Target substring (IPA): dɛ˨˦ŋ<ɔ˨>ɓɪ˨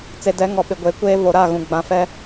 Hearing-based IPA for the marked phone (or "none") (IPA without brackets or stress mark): ɔ˨